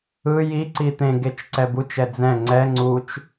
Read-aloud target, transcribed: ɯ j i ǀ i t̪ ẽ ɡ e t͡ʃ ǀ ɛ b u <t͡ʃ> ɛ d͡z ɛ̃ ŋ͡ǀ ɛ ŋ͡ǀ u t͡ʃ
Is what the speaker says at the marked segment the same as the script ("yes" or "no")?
yes